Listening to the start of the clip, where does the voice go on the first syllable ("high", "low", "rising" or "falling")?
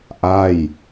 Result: falling